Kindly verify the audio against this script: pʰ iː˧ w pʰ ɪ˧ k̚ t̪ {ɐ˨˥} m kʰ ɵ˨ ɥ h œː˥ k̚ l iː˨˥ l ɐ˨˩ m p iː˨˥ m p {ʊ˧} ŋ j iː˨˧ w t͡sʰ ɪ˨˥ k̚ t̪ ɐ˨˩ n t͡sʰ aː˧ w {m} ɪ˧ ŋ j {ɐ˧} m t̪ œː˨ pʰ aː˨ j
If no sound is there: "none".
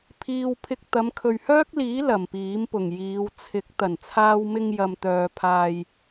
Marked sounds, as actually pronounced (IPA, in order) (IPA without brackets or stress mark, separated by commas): ɐ˨˧, ʊ˨˩, m, ɐ˨